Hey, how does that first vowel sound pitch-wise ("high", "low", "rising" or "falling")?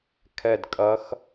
falling